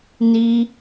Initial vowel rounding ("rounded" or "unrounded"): unrounded